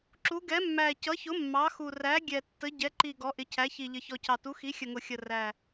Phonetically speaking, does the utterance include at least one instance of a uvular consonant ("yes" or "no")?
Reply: no